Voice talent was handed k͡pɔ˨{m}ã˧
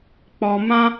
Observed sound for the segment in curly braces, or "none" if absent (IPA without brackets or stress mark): m